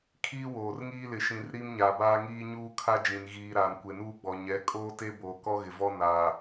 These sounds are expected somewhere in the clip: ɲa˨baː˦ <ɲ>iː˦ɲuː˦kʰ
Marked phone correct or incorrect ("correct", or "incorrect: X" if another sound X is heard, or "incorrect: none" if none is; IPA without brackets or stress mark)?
incorrect: ŋ